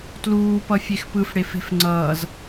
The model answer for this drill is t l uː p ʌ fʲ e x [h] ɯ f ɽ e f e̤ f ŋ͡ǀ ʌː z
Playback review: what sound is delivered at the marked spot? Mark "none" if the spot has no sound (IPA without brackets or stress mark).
p